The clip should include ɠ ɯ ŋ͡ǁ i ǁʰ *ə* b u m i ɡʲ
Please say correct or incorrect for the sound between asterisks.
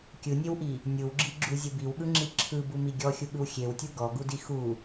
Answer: incorrect